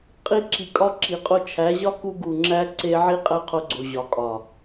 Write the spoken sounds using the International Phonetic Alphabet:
qʼ i˧ ǁ i˨ kʼ ɒ˧ ǁ i˨ qʼ o˧ t͡ʃʰ æ˨˦ ʑ ɒ˦ k u˧ ɡ u˨ ŋ͡ǁ æ˧ ǀ e˧ ʕ i˦ qʼ æ˦ qʰ o˧ ɡ͡ǀ o˨ ʑ ɒ˨ kʼ ɒ˨

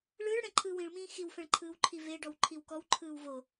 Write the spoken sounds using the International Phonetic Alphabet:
ɭ ɯː ɭ ɽ ɛ̃ ǃʰ ɯː w ĩ ɭ m ĩː x i w f ɛ̃ ɭ ǃʰ ɯː w ǃʰ i v e ɖ ɔ w ǃʰ i w k ɔ w ǃʰ ɯː w v o

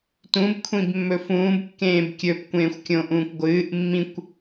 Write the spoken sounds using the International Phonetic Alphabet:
t ũ b kʷʰ ĩ b mː ɵ f ũː b kː ẽː b kʲ ɵ p kʷ ẽː xʷ kʲ õ ʔ ũː kʷ ɡʷ ɨː ʔ mː ĩ kʷ

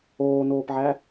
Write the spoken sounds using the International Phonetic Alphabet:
oː n oː p ʕ æ

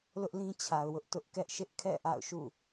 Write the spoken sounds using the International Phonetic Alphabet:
l ʊ˦ ʔ l ĩ˦ t͡ɕʰ a˨ ʊ̯ w ʊ˦ ʔ t ʊ˦ ʔ k ɛ˦ ʔ ʃ ɪ˦ ʔ kʰ ɛ̰˦˨ ʔ a̰˦˨ ʊ̯ ʃ ṵ˦˨

